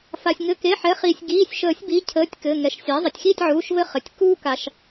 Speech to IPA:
f a˩ sʲ ŋ ɘ˩˧˩ k e˩˧˩ ħ ɛ˩˥ χ iː˩ sʲ ɡ iː˩˧˩ sʲ ʃ əː˨˩˦ sʲ b i˩˧˩ cʰ əː˩˧˩ tʲ k ɘ˩˧˩ ŋ ɛ˩˧˩ ʃ sʲ a˩˥ zˤ ɘ˩ tʲ x iː˥˨ tʲ ʕ uː˩˧˩ ʃ v ɘ˦ χ ɘ˩ tʲ k uː˦ k a˩ ʃ

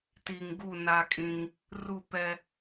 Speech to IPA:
t i˨ ŋ ɡ u˦˨ n a˦ kʼ ĩ˦ ŋ | r u˦˨ p ɛ˦

